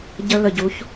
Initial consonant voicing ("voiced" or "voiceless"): voiced